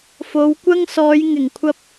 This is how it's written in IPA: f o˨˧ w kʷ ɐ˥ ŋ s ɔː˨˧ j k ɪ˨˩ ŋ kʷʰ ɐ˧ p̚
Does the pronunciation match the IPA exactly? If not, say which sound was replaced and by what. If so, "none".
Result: k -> ŋ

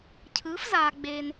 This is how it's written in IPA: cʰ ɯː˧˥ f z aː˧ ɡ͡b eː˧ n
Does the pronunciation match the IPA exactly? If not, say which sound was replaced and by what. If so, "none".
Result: none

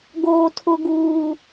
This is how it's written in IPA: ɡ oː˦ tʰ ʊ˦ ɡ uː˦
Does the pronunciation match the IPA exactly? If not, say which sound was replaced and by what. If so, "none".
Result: none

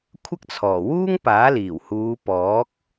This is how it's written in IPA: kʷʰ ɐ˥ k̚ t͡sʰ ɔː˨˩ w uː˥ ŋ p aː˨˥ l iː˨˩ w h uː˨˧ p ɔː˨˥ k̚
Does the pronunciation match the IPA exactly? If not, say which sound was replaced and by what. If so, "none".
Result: none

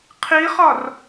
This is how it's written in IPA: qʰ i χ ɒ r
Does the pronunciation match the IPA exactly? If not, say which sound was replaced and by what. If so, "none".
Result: none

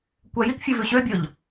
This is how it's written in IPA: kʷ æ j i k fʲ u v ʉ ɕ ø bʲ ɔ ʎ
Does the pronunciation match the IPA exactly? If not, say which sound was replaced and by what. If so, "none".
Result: none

